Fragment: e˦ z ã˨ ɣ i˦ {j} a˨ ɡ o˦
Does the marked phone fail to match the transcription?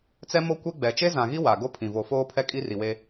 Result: yes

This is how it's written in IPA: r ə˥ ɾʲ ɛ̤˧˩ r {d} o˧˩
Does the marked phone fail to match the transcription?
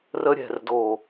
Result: no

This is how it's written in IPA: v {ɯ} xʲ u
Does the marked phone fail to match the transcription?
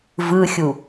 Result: no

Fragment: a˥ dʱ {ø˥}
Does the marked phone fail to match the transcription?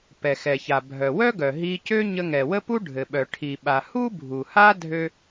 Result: no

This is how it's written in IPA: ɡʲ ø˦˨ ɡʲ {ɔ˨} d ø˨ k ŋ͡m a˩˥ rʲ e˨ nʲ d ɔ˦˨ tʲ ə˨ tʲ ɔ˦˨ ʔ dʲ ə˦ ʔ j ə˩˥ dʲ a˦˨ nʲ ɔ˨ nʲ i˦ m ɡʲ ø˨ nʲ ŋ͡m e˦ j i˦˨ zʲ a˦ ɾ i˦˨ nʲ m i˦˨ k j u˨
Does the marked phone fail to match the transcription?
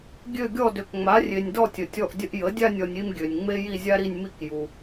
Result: yes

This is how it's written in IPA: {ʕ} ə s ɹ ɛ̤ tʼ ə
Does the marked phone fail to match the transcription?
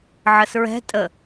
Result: no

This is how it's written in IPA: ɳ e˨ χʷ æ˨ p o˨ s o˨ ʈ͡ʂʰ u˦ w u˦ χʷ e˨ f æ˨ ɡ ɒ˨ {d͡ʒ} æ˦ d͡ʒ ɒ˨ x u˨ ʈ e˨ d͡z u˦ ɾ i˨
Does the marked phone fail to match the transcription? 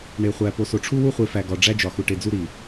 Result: yes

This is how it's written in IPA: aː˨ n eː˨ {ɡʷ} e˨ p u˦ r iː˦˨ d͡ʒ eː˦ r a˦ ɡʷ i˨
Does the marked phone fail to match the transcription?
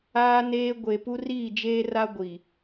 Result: no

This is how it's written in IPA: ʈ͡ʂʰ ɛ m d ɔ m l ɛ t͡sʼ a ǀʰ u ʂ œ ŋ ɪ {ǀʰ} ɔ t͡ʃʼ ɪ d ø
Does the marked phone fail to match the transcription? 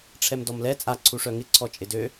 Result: no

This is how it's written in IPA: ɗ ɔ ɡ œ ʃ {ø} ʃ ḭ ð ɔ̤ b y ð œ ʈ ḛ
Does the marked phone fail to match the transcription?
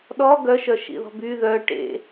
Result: yes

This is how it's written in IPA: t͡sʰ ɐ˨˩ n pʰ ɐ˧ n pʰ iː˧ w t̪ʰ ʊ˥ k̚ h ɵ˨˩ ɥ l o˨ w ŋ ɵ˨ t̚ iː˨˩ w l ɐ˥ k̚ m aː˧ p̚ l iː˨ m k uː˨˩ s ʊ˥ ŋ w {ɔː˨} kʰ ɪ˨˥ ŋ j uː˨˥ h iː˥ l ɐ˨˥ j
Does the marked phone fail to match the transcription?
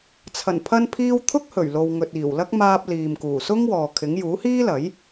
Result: no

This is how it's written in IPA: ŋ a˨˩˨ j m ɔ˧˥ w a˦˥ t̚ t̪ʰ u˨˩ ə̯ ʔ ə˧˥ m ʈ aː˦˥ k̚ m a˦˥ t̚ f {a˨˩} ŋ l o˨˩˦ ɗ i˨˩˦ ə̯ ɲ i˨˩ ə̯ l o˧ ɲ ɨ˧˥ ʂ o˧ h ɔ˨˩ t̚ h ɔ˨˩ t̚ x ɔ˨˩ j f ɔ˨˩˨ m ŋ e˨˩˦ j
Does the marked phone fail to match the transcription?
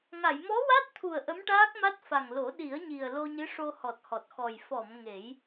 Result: no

